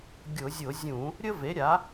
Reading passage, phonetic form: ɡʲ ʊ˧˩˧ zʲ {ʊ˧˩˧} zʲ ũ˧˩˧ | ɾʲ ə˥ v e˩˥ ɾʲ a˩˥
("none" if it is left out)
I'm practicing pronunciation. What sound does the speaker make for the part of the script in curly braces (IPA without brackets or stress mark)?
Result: ʊ˧˩˧